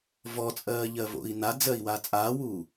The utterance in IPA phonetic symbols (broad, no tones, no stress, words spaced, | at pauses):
vɔt͡sʼɜːʎɜvo̰i̯ nad͡zɜi̯waː t͡sʼaːwuː